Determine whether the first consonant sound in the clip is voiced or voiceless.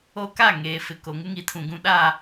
voiceless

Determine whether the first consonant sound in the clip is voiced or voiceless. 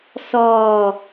voiceless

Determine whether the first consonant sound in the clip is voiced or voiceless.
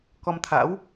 voiceless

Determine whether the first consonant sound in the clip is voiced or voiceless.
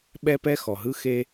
voiced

